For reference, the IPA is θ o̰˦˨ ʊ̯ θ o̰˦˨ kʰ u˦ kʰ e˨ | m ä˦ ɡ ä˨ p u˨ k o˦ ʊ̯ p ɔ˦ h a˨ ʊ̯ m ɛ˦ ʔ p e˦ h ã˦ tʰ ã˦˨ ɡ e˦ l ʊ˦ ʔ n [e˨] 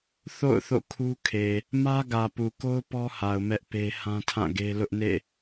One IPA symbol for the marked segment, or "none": ḛ˦˨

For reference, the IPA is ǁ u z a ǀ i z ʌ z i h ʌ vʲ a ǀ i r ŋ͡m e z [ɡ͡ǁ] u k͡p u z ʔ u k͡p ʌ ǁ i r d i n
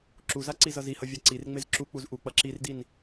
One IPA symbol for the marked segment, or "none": ǁ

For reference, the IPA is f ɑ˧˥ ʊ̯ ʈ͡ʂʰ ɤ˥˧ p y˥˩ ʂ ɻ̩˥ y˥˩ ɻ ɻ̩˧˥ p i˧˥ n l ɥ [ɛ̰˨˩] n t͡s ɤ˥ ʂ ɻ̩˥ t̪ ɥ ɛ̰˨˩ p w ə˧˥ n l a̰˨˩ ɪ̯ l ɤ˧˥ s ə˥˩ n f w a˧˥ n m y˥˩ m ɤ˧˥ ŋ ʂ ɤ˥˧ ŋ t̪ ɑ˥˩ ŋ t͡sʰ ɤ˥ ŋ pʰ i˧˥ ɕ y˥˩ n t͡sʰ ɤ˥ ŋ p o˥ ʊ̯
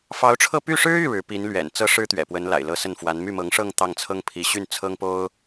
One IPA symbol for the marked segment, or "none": ɛ̰˨˩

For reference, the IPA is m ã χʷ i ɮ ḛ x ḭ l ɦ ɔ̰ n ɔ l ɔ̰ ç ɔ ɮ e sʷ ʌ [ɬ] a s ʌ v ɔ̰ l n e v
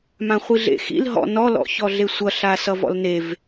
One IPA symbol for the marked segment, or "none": ɬ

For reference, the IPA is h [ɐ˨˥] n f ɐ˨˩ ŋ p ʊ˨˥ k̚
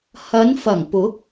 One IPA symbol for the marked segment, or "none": ɐ˨˧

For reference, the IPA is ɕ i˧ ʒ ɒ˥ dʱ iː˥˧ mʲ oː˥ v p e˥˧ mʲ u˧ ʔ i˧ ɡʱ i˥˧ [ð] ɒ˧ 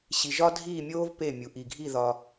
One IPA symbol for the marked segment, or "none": ð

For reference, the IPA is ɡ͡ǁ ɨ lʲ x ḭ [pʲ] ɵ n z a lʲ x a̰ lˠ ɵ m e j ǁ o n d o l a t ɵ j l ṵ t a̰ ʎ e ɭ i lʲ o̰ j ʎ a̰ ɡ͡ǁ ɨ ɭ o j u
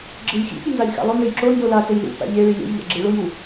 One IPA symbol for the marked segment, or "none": pʲ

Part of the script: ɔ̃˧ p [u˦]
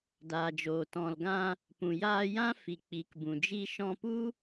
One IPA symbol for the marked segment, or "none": u˦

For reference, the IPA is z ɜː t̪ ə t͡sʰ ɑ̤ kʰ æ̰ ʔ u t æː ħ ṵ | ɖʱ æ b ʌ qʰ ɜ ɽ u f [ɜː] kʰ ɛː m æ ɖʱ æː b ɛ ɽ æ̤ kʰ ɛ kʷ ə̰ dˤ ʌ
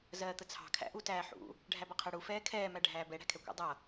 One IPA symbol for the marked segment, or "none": ɛː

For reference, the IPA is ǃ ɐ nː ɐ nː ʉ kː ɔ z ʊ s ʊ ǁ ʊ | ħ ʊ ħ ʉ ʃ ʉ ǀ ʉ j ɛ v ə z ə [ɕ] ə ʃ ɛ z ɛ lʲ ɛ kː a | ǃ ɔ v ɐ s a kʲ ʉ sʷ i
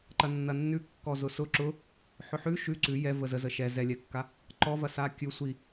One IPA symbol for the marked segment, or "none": z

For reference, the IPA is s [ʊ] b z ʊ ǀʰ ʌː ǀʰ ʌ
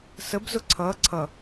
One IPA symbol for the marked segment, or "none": ə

